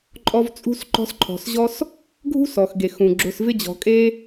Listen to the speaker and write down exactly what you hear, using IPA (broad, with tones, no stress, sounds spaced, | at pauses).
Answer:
ǃʼ ɔ˦ v t͡sʼ ṳ˥ s ǃ ɔ̤˦ s ǃʰ ɔ̤˨ s ʑ ɔ˥ s | ɡʱ ṳ˥ s ɔ˩ x ɡ e˩ x ũ˩ ɡ͡ǁ ʊ˨ s v ɪ˥ d͡ʑ ɔ̤˨ kʼ e˥